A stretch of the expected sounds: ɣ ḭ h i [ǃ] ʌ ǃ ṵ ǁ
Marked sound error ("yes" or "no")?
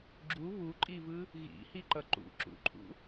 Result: no